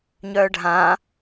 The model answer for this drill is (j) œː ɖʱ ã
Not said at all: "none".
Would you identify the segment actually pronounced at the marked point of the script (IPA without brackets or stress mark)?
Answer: ɲ